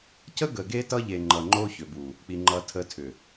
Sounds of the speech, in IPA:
c ə˦ ɡ ə˨ ɡ e˦ t ʌ˦ ʎ e˨ ŋ͡ǃ ʌ˨ ŋ͡ǃ o˦ ç ʏ˨ b u˨ | k͡p i˨ ŋ͡ǃ ʌ˨ tʰ ə˨˦ tʰ ʏ˨

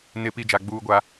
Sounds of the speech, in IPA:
n ɪ˨ p i˨ d͡ʒ a˨ ɡ͡b uː˦ ɡʷ a˦

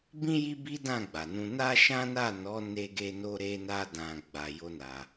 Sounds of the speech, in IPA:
b ĩ˦ j i˦ b i˦ d ã˦˨ ɡ͡b a˨ n ũ˧ n a˦ ʃ ã˦ n a˦˨ n ɔ˨˦ n e˧ ɡ e˧ n o˧ ɾ e˧ n a˧ d ã˨ ɡ͡b a˧ j o˦ n a˧

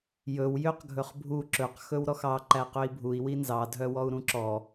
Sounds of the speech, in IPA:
j ɵ w j ø q ɡʱ ɵ χ bʱ u ǁ ɵ q x ɵ w ɾ ɔ x ɑ ǃ æ q ø i̯ bʱ u i̯ w i n z ɑ dʱ œ w ɔ u̯ ɾ ũ ǁ ɔ

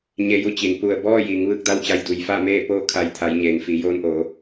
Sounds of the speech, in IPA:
ɲ e˧ j u˧ t͡ɕ i˩ n p u˧˩ ə̯ b ɔː˥˨ j iː˩˧ ŋ ʋ ɯː˥˨ k̚ d a˥˨ w t͡ɕ a˧ j d u˩ j f a˥˨ m eː˥˨ p oː˥˨ kʰ a˧˩ j t̪ʰ a˩˧ j ɲ eː˩ ŋ f i˩˧ j oː˧ n ʔ oː˩˧

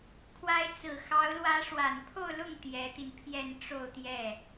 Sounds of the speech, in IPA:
kʰ w a˧˥ ɪ̯ t͡s ɹ̩˨˩ x ɑ˧˥ ʊ̯ l w ä˧˥ ʂ w a˨˩ n pʰ o˥˧ ʊ̯ l ʊ˥˩ ŋ t̪ j ɛ˧˥ t̪ i˧ n pʰ j ɛ˥˧ n ʈ͡ʂ o˥˧ ʊ̯ t̪ j ɛ˥˩

